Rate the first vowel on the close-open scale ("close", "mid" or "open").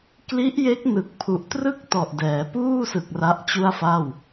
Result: close